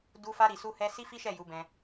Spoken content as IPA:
d u˧ f a˧ ɾ i˨ s u˧ h ɛ˦ s i˦ f i˦ ʃ ɛ˦˨ j u˨˦ b ɛ̃˧

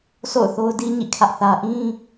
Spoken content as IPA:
s o̰˦˨ ʊ̯ θ o˦ ʊ̯ d i˦ ɲ ḭ˦˨ kʰ ä˦ ʔ θ ä˦ ʔ ĩ˦

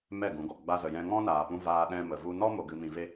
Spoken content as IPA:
m ɛ˦˨ ɡ ũ˨˦ ɡ ɔ˨ ɡ͡b a˦ z ə˧ j ɛ̃˦ ŋ ɔ̃˦ n aː˧ p ũ˦ v aː˦ ɗ ɛ̃˦ m ə˧ v u˧ n ɔ˦ m o˧ ɡ ɨ˧ m ĩ˧ v e˦

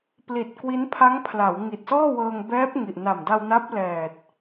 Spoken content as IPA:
p l i˨˩ t̚ k w i˦˥ n pʰ a˦˥ ŋ pʰ l a˩˦ w ŋ i˨˩ t̚ s ɔː˥˩ w ɤː˧ ŋ b ɛː˦˥ p̚ ŋ i˨˩ ʔ n a˨˩ m d a˧ w n a˦˥ p̚ l ɛː˨˩ t̚

